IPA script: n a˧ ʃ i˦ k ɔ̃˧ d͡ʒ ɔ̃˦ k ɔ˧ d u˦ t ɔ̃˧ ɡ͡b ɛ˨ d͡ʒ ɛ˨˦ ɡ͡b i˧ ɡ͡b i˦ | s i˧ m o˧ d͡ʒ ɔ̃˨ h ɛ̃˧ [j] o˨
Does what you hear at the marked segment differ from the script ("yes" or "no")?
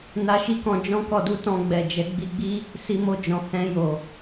no